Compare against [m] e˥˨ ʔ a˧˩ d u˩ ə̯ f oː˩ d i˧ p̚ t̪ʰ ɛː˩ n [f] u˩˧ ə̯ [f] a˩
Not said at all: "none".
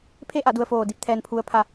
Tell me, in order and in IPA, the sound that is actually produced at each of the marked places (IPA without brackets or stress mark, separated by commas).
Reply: pʰ, pʰ, pʰ